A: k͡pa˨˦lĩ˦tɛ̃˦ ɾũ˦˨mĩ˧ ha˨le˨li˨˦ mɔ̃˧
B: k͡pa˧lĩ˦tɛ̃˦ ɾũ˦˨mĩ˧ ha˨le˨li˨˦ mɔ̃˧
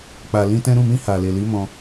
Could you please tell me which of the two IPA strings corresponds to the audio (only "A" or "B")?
B